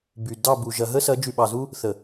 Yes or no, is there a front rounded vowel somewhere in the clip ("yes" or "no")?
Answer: yes